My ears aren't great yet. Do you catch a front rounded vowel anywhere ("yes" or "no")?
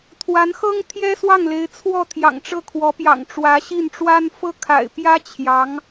no